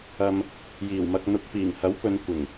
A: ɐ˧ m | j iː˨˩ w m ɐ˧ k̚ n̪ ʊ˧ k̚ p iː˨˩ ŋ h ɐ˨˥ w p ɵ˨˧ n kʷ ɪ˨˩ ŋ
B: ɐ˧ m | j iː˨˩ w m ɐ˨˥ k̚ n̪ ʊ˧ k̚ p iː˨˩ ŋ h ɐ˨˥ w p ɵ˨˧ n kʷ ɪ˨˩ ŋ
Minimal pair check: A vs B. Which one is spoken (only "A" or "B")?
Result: A